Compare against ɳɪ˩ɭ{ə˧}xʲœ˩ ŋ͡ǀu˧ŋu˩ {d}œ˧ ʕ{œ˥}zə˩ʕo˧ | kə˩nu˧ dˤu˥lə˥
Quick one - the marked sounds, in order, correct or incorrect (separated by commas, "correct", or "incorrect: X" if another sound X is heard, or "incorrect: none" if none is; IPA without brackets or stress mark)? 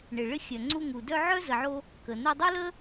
incorrect: ɪ˧, correct, correct